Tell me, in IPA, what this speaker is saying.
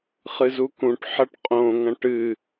χɨzukũʈ ħɐʈqʼõŋɐ̃ʈ ɨ

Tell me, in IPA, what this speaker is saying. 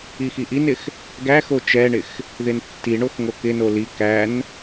ixiʔinɪx | ɡæxo t͡ʃɛɳɪx | ðɪntːiɳox ŋokɪno li kæn

